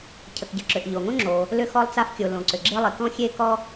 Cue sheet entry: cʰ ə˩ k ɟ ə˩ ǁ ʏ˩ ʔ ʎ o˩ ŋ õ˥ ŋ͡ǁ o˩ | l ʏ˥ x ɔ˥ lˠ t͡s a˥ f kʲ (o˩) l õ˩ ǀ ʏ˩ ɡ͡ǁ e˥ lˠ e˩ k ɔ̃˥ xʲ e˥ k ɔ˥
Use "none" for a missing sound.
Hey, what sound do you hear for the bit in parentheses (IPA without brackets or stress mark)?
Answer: o˩